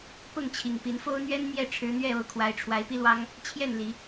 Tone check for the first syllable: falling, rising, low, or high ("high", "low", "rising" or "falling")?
falling